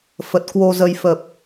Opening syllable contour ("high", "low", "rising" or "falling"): low